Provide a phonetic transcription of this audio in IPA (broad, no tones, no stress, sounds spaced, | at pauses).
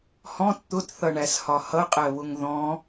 h ɔ̃ t t̪ ʊ t θ ʌ ɳ æ s h ɒ h ʌ qʼ ɜ β ʊ ŋ ð ɔ̃